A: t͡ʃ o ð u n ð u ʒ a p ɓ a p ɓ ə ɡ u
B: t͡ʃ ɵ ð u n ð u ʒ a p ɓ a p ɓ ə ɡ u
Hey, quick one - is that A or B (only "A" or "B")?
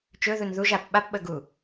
B